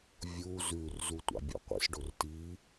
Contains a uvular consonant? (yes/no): yes